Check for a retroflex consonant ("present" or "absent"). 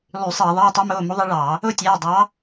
present